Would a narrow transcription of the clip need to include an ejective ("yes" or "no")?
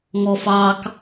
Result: no